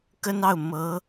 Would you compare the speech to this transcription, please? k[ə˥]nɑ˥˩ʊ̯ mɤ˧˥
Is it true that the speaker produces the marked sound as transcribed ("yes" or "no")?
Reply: yes